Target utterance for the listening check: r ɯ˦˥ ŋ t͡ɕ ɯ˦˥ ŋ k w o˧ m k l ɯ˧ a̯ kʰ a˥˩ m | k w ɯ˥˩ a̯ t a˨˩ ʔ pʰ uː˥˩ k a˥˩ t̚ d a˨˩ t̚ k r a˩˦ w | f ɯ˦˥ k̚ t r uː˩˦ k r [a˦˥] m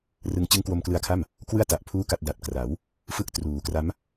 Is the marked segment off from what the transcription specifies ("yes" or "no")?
no